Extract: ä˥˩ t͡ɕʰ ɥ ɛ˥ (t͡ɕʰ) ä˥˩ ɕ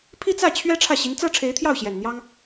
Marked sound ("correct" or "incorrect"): incorrect